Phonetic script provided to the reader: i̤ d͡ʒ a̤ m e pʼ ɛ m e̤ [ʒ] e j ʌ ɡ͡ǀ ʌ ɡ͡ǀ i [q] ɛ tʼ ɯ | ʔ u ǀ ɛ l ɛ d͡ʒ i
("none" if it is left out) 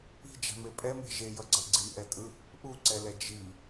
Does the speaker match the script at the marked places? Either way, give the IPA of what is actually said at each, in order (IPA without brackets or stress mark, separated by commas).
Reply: ʒ, ʔ